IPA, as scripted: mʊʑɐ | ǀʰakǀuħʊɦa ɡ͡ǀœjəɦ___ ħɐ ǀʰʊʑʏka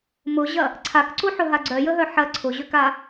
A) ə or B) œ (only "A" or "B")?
B